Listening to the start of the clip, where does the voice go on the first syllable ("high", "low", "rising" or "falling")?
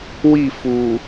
falling